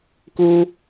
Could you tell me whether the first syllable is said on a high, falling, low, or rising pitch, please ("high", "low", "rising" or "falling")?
high